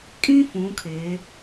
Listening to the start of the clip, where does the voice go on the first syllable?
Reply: high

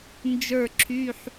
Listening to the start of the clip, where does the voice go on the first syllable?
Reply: falling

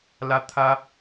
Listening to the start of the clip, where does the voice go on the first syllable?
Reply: high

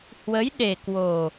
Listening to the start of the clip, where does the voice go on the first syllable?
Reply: rising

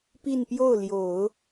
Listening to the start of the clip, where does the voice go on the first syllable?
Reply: falling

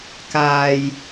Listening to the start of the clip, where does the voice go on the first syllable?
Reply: low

